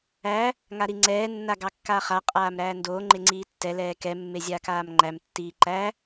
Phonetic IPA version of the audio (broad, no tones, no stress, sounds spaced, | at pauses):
æ | ŋ a ɾ i ŋ͡ǀ ɛː nː a ɡ ɑ kː aː χ a qʼ aː m ɾ æː n d oː ŋ͡ǃ e ŋ͡ǀ iː tː ɛ l ɛː k ɛ mː e zʲ aː k aː m ŋ͡ǃ æ m tː iː ǃ æ